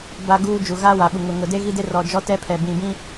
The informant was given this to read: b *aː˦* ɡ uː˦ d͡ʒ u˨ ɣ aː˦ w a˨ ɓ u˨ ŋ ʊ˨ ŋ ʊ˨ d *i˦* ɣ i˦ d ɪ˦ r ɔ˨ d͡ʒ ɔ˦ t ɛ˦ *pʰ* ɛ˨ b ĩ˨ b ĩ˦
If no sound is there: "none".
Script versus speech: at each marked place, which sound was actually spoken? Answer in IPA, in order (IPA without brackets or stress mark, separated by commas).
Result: a˦, e˦, pʰ